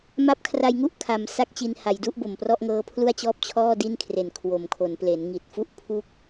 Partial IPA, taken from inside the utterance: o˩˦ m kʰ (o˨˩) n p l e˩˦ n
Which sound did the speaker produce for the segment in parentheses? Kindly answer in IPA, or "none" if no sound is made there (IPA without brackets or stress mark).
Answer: o˩˦